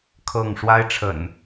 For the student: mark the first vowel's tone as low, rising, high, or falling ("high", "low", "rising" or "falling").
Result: falling